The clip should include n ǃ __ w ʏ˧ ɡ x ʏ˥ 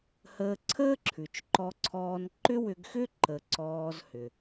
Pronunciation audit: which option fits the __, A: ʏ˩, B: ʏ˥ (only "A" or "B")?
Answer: B